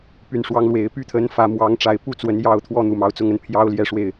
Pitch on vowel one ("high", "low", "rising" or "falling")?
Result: low